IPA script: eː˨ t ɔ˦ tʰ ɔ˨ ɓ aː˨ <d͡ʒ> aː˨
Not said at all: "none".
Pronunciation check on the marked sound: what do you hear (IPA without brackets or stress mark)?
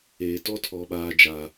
d͡ʒ